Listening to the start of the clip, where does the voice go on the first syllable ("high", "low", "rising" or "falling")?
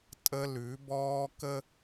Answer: high